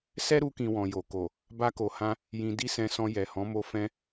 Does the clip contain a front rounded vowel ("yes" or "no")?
no